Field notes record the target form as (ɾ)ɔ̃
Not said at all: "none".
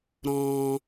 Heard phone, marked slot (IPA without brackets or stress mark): ɾ